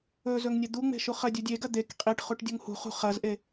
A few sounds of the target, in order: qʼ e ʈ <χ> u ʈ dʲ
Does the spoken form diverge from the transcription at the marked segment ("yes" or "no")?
no